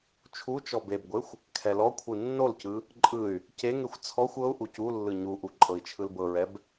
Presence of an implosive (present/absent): absent